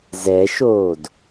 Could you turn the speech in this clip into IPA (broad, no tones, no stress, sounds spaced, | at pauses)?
z ɛ ʃ oː d